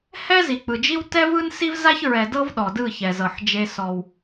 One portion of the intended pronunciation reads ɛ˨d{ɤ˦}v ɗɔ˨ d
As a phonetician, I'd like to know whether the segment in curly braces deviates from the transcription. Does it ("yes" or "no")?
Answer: no